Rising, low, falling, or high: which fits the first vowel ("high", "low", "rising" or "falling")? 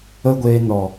high